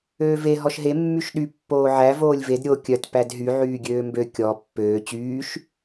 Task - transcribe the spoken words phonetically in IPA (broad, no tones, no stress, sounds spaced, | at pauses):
øː v e ɦ ɔ ʃ ɦ e mː y ʃ ɗ y pː oː ʕ æ v oː lʲ v e d ɾʲ o kʲ œ t p æ d ɦ y ʕ yː ɡʲ øː m b ø kʲ ɔ pː øː t͡ɕ yː ʃ